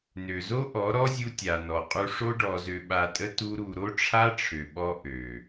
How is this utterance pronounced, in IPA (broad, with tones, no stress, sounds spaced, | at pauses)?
n ø˨ z o˦ ʔ ɔ˨˦ ɾ ɔ˦ zʲ u˧ tʲ a˨ n ɔ˨ qʼ u˧ ʂ o˦ ɖ ɔ˧ z ø˧ ɓ a˧ tʼ ə˦ t u˦ ɾ u˧ ɾ o˦ ʈ͡ʂʰ a˦ ʈ͡ʂʰ ø˨ ɓ ɔ˧ ʔ ø˨